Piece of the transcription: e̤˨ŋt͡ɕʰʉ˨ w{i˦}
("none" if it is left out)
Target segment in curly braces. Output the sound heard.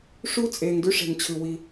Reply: i˦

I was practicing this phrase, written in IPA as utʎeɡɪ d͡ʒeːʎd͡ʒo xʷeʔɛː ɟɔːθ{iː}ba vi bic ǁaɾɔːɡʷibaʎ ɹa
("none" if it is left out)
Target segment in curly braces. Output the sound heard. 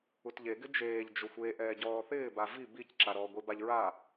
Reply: ɪː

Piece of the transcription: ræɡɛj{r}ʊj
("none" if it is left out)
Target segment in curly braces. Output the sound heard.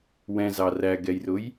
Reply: r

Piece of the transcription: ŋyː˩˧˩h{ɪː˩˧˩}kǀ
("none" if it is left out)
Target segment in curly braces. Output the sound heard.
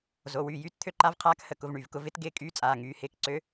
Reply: ɪː˧˥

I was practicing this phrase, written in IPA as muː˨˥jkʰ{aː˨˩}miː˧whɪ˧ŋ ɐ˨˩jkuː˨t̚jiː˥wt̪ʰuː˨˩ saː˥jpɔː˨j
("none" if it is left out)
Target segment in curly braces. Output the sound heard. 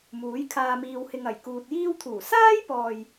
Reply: aː˧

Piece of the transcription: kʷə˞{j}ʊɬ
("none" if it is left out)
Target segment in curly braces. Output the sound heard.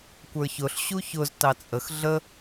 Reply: ç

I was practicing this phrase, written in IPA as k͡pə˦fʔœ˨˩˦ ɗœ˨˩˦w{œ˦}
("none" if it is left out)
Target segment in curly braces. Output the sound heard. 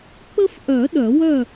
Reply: œ˥˨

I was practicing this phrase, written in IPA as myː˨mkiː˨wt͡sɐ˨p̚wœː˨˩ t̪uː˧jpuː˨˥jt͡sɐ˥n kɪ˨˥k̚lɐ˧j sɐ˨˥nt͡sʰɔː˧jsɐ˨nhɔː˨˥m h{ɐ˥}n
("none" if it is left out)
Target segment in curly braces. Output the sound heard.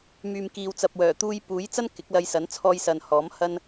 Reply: ɐ˧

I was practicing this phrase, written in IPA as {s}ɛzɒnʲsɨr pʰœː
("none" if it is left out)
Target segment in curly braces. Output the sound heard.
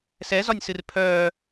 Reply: s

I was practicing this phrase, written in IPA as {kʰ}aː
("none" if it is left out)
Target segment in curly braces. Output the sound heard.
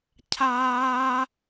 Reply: cʰ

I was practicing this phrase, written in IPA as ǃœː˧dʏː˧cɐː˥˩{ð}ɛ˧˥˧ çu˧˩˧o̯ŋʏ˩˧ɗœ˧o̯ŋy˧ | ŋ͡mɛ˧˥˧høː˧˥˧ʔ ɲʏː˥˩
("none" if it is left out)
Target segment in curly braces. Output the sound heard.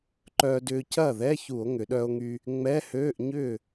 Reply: ð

